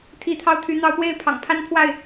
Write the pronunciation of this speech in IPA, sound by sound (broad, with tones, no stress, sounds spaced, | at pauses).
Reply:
t̪ʰ i˨˦ t̪ʰ ɑ˧ ʊ̯ t̪ʰ y˨˦ n̪ ɑ˨˦ ʊ̯ p w e˥˨ ɪ̯ pʰ ɑ̰˨˩ ŋ pʰ a˦ n pʰ w a˥˨ ɪ̯